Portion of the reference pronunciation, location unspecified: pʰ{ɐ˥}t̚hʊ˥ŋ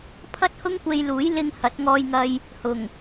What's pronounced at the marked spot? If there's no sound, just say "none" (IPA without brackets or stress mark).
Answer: ɐ˥